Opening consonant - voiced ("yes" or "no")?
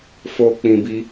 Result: no